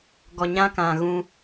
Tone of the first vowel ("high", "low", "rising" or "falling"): low